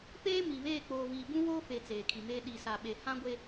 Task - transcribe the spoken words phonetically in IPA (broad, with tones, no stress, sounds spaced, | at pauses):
p eː˦ m i˨ β eː˦˨ k͡p oː˨ v iː˨ b ũ˦ w oː˦ f e˨ t͡s eː˨ kʰ i˨ m eː˦ ɗ i˨ s a˨ ɓ e˨ h ã˦ ɡʷ e˦